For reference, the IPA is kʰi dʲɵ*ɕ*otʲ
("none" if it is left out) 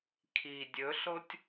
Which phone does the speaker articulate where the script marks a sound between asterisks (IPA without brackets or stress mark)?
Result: ɬ